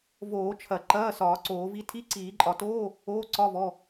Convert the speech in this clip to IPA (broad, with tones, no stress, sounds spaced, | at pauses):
v oː˨˩˦ t͡ʃʰ ɐ˨˩˦ ǃ ɐː˧˥˧ s ɒː˨˩˦ ǀ oː˨˩˦ v i˧˥˧ tʰ i˧˥˧ ǀ iː˨˩˦ ǃʼ ɒ˨˩˦ t oː˧˥˧ | oː˧˥˧ ǀ ɒ˧˥˧ v ɔ˧˥˧